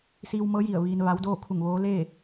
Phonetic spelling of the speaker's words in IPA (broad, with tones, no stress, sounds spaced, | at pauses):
s iː˧ w m ɤː˧˥ j i˧˩ ə̯ ʋ iː˧ n ʋ a˧˥ w d oː˥˨ kʰ u˧˩ ŋ ʋ oː˧˥ l eː˥˨